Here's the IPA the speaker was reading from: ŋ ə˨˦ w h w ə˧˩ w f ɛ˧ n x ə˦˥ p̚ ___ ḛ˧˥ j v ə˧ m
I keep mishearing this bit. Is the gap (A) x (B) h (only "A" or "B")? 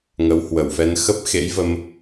A